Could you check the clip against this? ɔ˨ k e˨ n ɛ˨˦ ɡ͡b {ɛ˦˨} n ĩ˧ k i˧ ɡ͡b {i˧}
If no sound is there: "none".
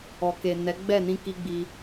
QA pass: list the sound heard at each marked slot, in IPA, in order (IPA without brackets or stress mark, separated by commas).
ɛ˦˨, i˧